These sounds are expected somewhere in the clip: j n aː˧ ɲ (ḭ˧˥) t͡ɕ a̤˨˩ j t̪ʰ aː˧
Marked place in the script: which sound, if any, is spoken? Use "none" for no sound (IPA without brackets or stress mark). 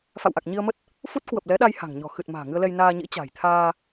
ḭ˧˥